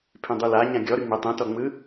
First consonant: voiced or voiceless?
voiceless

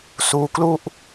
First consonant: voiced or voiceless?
voiceless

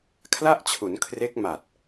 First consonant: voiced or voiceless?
voiceless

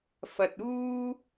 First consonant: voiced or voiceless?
voiceless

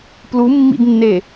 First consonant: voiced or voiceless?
voiceless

